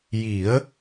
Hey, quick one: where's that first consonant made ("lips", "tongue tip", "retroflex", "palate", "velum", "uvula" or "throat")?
palate